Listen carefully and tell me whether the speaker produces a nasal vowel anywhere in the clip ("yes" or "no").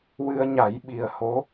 no